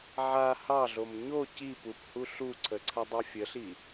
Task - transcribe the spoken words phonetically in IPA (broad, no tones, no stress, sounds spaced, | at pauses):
ʕ a h ɑ ɮ o m ɲ o c i p u p h u ɬ u ǀʰ ə ǀʰ a dˤ ɑ fʲ ə ɬ i